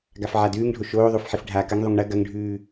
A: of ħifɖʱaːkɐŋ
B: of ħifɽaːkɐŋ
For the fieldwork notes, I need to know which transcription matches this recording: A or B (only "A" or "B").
A